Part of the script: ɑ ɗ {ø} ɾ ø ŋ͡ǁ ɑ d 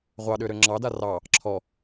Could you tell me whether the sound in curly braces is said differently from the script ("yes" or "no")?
no